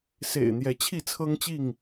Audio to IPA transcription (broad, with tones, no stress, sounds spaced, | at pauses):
s ḛ˨˩ ɪ̯ n̪ j ɛ˨˦ t͡ɕʰ i˥˨ t͡sʰ ɤ˦ ŋ t͡ɕ i˥˨ ŋ